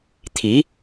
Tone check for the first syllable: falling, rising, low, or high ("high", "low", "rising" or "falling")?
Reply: rising